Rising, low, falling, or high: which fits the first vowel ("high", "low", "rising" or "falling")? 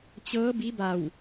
rising